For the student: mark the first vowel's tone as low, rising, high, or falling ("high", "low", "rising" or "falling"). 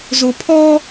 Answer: low